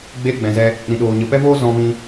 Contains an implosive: yes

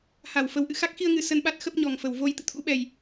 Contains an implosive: yes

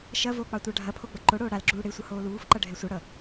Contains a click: yes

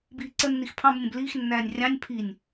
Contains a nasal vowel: yes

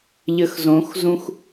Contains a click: no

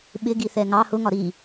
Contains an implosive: yes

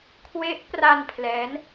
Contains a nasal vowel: no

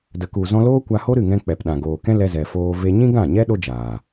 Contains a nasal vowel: yes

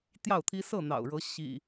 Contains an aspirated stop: yes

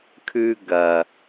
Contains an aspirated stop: yes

